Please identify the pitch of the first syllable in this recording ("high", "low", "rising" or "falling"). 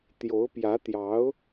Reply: rising